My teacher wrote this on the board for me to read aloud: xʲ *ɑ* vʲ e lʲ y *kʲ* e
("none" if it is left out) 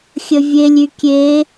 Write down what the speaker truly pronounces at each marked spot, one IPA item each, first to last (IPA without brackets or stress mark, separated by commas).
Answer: ə, kʲ